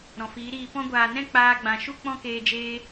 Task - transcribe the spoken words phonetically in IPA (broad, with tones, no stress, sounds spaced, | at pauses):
ɾ ɔ̃˨ f iː˨˦ ɾ iː˧ p ɔ̃˦ ɡʷ aː˨ n ɛ̃˦ k͡p aː˧ ɡ͡b ã˨ ʃ u˦ k͡p ɔ̃˦ k eː˧ d͡ʒ eː˧